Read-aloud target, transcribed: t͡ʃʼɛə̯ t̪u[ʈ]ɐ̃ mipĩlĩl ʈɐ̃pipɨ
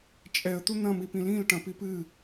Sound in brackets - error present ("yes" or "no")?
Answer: yes